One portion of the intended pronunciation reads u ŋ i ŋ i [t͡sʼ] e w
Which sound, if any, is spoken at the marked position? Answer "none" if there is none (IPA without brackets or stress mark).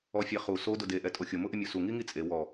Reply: t͡sʼ